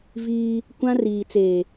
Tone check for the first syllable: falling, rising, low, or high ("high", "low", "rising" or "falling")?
high